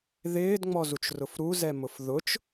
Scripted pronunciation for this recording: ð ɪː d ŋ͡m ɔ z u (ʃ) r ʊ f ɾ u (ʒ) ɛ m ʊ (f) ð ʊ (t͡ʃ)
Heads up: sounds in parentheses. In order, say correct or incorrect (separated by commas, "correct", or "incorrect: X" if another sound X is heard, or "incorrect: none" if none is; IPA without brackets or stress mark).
incorrect: t͡ʃ, incorrect: z, correct, correct